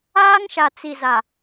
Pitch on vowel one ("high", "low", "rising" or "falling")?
high